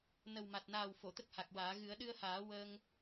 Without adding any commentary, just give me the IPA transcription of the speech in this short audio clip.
n ə˨˩ w m a˨˩ t̚ n aː˨˩ w f o˨˩˨ t̪ ə˦˥ k̚ h a˨˩ k̚ w aː˨˩˦ ɣ ɨ˨˩˦ ə̯ ɗ ɨ˧ ə̯ h aː˨˩˦ w əː˧ ŋ

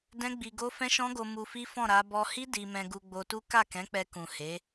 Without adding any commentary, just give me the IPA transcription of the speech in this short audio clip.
d ɛ̃˦ ɡ͡b i˧ ɡ o˦ f ɛ̃˦ ʃ ɔ̃˦ ɡ o˧ m u˧ f i˦ f ɔ̃˦˨ ɾ a˨˦ b ɔ˧ h i˦ d i˧ m ɛ̃˧ ɡ u˧ ɡ͡b o˧ t u˦ k a˦˨ k ɛ̃˨˦ k͡p ɛ˧ k ũ˨ h e˨˦

